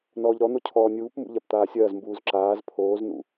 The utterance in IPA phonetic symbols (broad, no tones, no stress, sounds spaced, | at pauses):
n ɔː ʎ ɾ ɔ n̪ o cʰ ɔː nʲ uː p m ṵ ʎ a p t̪ aː sʲ ɐː z m b uː z ǁ aː z pʰ oː z n ṵ